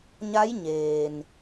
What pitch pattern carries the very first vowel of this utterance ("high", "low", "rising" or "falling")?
rising